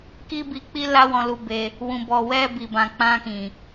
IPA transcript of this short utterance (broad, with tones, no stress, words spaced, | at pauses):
ki˧ bi˧k͡pi˦ la˦wɔ̃˧lu˧be˧ | wũ˨bɔ˨ wɛ˧bi˨bã˨ k͡pã˧kĩ˨